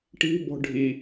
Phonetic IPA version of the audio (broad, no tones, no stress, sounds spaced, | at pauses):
ʈ i̤ b ɔ̤ ɖʱ i